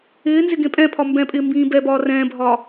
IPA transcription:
ɪː n z ɪ ɡ ẽ pʼ ɛ̃ pʰ ɒ m b ɛ̃ pʼ ɪː m b ĩː b ɛ b ɒː r ɛ̃ː bʱ ɒː

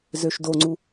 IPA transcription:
z ø ʃ d o ŋ͡ǀ u

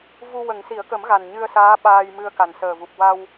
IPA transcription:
v u˧ w ə˨˩˦ ŋ s i˨˩˦ ə̯ k ə˨˩˦ m ɣ a˨˩ n ɲ ɨ˧ ə̯ s aː˧˥ ɓ aː˧ j m ɨ˧ ə̯ k a˨˩ n s əː˨˩ v u˨˩ p̚ w a˧ w

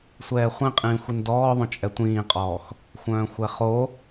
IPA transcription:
sʷ ɛː χʷ ĩ qʼ ĩː xʷ i n d ɔː ðˤ õ t͡ʃʼ ɛ tʷ ĩː qʼ ɔː x | xʷ œ̃ː xʷ ɛ χ o

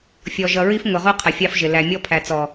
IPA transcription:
fʲ ɔ˨ ʒ ʌ˨ ɹ i˦ f ŋ ʊ˨ ʁ u˦ qʰ ə˨ fʲ ɑ˦ f ʒ ɪ˨ l æ˨ mʲ ɔ˦ pʰ æ˨ t͡s ɔ˨

